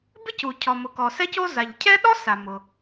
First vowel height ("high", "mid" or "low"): high